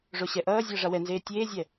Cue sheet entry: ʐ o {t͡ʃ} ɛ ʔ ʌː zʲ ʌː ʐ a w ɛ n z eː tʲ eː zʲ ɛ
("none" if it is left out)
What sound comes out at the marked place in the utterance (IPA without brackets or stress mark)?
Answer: ɕ